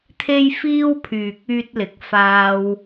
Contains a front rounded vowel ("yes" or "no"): yes